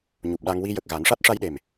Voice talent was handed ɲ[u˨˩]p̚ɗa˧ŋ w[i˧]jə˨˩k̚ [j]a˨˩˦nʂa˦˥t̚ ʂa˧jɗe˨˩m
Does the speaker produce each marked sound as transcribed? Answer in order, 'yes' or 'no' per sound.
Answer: yes, yes, no

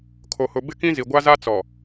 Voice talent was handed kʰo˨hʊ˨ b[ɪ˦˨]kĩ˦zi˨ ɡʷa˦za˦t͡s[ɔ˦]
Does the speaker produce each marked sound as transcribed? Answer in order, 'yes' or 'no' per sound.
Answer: yes, no

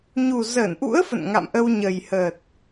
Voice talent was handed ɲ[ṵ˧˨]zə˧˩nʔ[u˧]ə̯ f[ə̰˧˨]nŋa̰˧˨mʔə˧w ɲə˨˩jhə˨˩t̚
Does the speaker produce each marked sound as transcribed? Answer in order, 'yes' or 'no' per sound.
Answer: no, no, yes

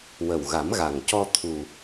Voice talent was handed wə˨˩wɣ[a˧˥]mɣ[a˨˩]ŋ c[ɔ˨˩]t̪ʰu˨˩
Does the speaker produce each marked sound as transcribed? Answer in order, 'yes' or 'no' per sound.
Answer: no, yes, no

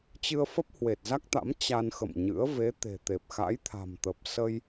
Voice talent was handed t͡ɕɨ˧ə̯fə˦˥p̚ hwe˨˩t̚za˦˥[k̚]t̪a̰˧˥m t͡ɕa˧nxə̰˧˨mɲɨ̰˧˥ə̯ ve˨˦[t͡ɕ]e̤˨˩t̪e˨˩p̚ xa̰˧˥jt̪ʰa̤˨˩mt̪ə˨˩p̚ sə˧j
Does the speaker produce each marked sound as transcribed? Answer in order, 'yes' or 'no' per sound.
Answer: yes, no

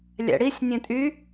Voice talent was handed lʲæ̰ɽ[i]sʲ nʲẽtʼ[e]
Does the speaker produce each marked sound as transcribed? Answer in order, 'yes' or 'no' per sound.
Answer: yes, no

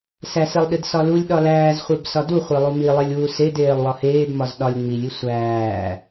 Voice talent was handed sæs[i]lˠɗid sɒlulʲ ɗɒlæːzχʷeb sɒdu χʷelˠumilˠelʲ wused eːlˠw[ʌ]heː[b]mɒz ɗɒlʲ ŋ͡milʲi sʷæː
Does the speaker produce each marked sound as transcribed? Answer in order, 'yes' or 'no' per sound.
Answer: no, no, yes

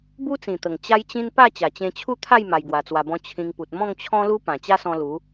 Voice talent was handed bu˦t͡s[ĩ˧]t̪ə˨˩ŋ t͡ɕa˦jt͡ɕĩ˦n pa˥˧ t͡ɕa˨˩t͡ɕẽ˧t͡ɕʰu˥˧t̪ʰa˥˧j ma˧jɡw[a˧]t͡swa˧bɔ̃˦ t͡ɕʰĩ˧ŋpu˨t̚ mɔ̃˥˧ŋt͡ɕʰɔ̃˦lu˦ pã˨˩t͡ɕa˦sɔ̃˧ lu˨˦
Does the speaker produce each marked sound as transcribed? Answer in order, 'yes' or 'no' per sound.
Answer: no, yes

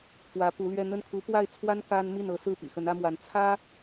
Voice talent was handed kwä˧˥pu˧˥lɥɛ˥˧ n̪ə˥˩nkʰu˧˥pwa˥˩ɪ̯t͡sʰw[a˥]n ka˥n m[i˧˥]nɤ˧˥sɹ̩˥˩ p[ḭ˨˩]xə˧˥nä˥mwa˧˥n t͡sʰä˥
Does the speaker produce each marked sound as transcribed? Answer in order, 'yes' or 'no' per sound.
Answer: yes, no, yes

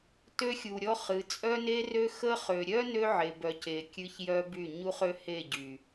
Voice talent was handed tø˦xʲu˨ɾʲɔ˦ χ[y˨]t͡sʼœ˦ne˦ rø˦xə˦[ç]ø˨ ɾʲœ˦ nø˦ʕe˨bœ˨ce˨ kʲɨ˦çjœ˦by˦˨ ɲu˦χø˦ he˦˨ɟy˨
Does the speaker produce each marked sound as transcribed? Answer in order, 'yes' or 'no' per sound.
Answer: no, no

